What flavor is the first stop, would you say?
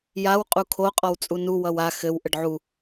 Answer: ejective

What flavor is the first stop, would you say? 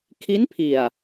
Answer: aspirated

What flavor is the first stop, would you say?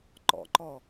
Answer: click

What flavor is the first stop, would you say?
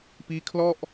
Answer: plain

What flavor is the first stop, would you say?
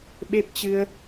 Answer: implosive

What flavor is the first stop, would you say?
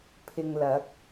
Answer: aspirated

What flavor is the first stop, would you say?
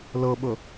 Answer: implosive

